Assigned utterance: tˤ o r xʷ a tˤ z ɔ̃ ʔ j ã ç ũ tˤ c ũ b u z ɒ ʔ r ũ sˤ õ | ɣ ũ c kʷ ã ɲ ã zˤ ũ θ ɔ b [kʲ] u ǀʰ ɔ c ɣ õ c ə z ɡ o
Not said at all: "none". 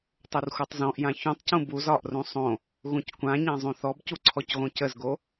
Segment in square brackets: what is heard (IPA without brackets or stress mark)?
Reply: c